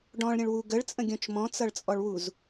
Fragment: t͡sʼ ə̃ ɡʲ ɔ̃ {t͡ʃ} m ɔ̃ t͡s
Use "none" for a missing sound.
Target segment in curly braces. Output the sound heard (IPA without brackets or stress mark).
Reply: t͡ʃ